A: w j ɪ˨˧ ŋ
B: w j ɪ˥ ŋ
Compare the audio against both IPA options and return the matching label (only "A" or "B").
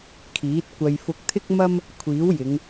A